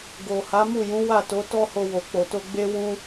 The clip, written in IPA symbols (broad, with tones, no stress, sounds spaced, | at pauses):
ɡ o˨ h a˨˦ m u˦˨ j ũ˨˦ w a˦˨ t o˨˦ t ɔ˦ h o˧ w o˨ k͡p o˨ t o˧ ɡ͡b e˦ w ũ˦